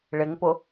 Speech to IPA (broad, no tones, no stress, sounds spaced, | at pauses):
ɭ ɪ ŋ p ʊ